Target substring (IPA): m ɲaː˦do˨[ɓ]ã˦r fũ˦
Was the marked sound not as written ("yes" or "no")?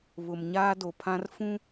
yes